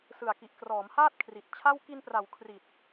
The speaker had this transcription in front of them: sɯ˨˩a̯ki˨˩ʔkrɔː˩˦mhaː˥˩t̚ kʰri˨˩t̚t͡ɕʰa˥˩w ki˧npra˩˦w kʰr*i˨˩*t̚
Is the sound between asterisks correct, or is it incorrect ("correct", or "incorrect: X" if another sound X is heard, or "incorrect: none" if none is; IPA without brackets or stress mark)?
correct